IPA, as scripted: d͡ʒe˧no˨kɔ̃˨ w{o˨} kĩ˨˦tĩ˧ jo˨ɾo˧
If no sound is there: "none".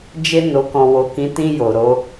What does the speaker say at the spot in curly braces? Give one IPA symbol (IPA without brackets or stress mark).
o˨